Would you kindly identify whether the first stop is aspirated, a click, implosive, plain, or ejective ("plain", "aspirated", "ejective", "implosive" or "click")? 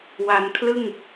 aspirated